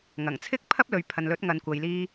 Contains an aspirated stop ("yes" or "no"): yes